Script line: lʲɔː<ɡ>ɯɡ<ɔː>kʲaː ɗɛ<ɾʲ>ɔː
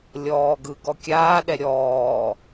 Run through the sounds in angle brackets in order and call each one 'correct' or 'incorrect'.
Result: correct, incorrect, correct

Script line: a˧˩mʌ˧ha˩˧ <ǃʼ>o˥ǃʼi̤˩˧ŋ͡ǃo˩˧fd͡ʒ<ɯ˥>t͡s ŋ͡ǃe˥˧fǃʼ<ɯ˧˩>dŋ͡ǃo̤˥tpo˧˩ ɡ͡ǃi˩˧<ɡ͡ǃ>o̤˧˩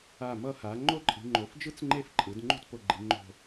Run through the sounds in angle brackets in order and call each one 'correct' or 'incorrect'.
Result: incorrect, correct, incorrect, incorrect

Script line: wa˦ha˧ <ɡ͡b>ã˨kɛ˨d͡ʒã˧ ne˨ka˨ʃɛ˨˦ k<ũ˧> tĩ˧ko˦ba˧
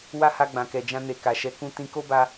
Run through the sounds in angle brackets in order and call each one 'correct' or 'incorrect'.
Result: correct, correct

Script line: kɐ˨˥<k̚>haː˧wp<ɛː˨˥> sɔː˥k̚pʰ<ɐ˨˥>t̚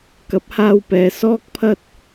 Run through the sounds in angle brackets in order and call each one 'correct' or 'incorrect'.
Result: incorrect, incorrect, incorrect

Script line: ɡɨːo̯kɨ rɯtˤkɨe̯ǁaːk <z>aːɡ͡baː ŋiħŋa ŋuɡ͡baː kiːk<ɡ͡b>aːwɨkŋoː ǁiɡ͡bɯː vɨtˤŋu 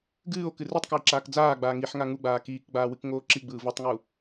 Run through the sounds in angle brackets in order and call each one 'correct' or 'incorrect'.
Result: incorrect, correct

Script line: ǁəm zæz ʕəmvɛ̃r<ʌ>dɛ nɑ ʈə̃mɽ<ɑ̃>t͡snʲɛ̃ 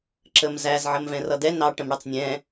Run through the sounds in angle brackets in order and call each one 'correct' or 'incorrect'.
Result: correct, incorrect

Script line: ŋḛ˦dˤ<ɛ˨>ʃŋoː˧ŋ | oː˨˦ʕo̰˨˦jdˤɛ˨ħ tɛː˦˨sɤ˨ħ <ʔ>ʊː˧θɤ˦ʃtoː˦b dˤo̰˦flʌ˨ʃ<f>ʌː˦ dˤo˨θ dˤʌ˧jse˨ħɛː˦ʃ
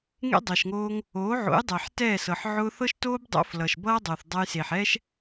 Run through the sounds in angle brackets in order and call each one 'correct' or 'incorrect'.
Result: correct, incorrect, incorrect

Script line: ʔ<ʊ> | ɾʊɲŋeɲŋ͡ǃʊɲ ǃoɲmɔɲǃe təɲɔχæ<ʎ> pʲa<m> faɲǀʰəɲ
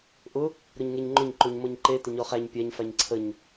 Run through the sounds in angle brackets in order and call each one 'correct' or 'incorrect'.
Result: correct, incorrect, incorrect

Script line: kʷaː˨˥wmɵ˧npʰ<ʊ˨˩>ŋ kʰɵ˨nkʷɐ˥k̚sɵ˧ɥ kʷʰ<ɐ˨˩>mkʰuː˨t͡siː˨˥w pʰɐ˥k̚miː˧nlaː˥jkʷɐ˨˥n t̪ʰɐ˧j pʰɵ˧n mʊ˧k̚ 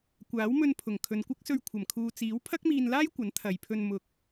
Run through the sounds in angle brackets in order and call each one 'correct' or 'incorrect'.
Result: correct, correct

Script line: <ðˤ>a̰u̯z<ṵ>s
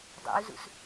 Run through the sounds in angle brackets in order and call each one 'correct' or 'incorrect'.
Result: incorrect, correct

